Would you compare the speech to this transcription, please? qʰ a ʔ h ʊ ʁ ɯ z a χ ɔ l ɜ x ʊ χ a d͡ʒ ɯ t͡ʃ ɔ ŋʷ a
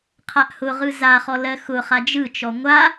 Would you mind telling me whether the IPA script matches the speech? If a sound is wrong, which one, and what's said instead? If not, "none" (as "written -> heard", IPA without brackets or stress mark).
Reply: none